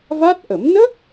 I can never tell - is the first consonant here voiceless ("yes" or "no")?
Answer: no